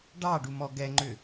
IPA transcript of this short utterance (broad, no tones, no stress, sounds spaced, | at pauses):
ɖ ɑ ɖ u m ɔ ɡ ɛ ŋ͡ǃ ʏ